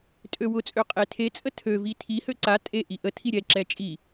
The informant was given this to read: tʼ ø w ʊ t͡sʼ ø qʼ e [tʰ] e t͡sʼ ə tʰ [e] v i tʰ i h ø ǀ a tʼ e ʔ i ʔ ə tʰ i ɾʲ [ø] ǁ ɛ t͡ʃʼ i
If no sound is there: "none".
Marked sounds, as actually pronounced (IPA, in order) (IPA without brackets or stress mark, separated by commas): tʰ, ø, ɛ